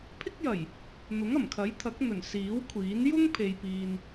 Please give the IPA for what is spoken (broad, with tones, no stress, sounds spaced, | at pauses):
pʰ ɪ˥ k̚ j ɐ˨˩ j | n̪ ʊ˨˥ ŋ ɐ˨˩ m kʰ ɐ˨˥ j t̪ʰ ɐ˨˥ k̚ n̪ ɵ˨˩ n s iː˨˥ w kʷʰ iː˨˥ n j ʊ˥ ŋ pʰ e˨ j p iː˨ n